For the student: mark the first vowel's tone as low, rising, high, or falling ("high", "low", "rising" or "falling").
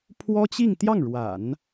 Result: high